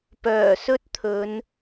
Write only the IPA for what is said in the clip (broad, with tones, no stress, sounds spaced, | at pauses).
p œː˨˩ s ɵ˥ t̚ t̪ʰ ɵ˨˧ n